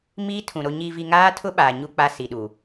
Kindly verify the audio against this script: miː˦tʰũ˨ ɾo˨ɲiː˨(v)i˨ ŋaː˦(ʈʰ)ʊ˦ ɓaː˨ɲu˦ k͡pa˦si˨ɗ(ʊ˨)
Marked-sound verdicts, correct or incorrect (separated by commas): correct, incorrect, incorrect